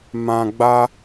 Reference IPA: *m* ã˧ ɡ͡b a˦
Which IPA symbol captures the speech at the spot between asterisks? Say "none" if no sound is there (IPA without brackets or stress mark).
m